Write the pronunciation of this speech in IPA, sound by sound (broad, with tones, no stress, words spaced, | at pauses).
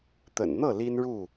t̪ə̰˨˩nn̪ɤ˥˨ li˦nɻu˥˨